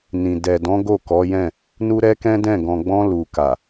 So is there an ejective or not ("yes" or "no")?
no